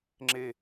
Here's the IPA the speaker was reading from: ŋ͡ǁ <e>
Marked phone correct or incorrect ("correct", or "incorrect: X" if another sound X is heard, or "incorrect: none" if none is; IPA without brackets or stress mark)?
correct